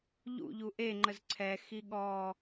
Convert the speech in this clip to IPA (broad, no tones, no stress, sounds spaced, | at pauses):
ʎ ṵ ʎ u ʔ e ŋ͡ǃ ə z ǀʰ ɛ x i ɠ ɔː